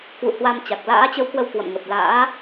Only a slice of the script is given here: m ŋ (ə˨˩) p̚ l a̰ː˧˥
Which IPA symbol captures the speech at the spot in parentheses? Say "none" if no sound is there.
ə˨˩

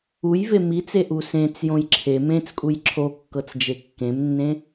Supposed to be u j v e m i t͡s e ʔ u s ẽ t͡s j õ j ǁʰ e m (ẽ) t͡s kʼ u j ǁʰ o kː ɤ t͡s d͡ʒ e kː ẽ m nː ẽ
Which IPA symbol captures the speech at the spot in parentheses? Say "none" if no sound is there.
ẽ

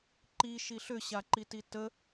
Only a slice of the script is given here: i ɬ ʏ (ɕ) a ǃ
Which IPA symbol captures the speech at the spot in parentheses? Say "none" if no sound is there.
ɕ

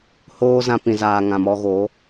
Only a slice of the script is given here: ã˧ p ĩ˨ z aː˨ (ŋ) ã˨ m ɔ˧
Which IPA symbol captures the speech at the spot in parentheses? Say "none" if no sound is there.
ŋ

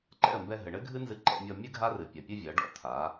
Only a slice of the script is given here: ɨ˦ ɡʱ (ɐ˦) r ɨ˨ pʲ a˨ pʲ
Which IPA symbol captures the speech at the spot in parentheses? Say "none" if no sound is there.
a˦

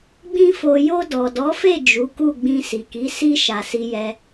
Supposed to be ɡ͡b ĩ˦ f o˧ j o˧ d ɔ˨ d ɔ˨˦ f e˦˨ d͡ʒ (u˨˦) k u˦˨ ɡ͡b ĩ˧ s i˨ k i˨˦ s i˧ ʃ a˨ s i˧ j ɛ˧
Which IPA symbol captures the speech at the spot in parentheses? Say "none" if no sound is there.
u˨˦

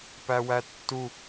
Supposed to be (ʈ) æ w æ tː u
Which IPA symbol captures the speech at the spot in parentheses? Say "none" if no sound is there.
p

